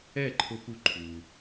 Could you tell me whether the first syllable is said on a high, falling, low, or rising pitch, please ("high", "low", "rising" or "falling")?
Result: falling